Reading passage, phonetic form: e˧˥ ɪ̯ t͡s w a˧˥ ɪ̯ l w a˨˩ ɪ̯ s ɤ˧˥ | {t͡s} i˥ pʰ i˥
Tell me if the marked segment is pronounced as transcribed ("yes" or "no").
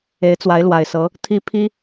no